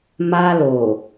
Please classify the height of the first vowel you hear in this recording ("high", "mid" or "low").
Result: low